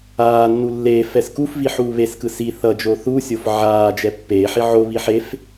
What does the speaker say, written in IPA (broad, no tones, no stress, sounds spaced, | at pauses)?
aː nː u lː eː f ɛ s k u f v i ħ uː β e s k ɯ s i θ ʌ d͡ʒ o θ u sʲ o f ʕ aː d͡ʒ ɛ pː eː ħ i ʕ o β i ħ e f